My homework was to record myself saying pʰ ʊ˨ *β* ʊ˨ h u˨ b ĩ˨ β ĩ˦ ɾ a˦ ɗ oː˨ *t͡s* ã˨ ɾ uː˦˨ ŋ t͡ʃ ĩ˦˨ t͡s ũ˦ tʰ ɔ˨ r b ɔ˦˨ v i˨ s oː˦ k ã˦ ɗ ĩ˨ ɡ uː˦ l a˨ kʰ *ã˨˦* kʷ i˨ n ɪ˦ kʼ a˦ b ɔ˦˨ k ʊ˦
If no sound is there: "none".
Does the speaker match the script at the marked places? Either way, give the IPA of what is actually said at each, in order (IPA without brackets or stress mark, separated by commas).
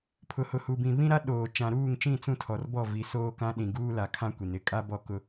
h, t͡ʃ, ã˦